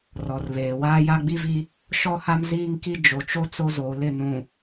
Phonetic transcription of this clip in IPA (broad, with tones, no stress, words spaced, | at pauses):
rɔ˨rβeː˨ waː˦ja˦ɡ͡bi˦vi˦ | ʃɔ˦ha˦m ziː˦ŋki˦ d͡ʒo˨t͡ʃo˦ t͡so˦zoː˨lɪ˦˨ nũ˨